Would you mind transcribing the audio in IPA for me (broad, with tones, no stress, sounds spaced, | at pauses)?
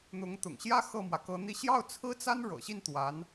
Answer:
n̪ ʊ˧˥ ŋ t̪ ʊ̰˨˩ ŋ ɕ j ä˥ x ɤ˥˩ m w ä˩ k ɤ˧˥ n̪ i˥˧ ɕ j ɑ˥˩ ʊ̯ t͡sʰ ɹ̩˥ t͡s a˥ n ɻ ɤ̰˨˩ ɕ i˥˩ n t̪ w a˧˥ n